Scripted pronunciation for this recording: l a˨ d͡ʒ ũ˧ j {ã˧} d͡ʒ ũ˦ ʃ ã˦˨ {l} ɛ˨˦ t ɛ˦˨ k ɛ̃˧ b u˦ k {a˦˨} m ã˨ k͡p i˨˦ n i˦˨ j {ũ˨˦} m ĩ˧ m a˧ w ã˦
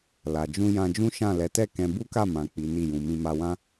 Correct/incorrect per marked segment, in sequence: correct, correct, correct, incorrect

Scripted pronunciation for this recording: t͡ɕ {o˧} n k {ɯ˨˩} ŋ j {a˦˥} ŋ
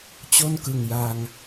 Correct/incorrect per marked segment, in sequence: incorrect, correct, incorrect

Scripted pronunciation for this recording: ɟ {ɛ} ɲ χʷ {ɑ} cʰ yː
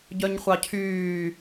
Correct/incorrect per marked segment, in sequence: incorrect, correct

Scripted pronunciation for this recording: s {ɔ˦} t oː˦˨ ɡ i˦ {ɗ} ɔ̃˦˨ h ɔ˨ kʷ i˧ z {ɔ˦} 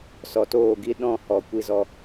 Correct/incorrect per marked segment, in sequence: incorrect, correct, incorrect

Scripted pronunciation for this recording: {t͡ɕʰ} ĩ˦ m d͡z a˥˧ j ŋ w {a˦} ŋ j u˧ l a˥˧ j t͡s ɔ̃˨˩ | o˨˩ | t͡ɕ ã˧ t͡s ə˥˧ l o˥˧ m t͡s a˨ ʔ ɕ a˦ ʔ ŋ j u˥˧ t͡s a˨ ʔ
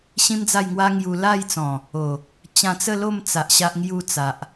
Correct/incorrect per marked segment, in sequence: incorrect, correct

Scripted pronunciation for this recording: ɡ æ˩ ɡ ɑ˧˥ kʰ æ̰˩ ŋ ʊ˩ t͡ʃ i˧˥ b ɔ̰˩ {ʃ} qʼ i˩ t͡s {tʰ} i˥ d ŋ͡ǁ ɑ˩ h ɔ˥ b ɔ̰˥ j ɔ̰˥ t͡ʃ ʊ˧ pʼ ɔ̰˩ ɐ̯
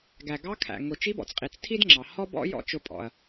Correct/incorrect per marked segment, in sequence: incorrect, correct

